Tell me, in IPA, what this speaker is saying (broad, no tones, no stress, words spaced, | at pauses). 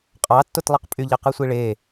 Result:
qʼɑtːot lˠiqpʼyʎɑ qɯsʷiɭe